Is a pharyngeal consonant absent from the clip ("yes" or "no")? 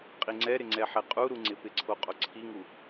no